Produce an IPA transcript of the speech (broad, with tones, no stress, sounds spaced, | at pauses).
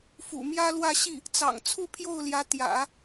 f ṵ˨˩ m j ä˥ l w ä˥˧ ɕ i˥˩ | t͡s ɑ̰˨˩ ŋ t͡sʰ u˥˧ pʰ j o˥˩ ʊ̯ l j ä˧˥ t̪ j ä̰˨˩˦